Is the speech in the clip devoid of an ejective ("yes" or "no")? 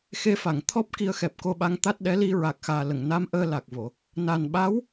yes